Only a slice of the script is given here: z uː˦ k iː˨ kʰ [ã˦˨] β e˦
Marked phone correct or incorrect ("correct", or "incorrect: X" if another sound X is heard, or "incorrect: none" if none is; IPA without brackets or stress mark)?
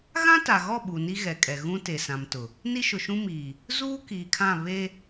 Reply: correct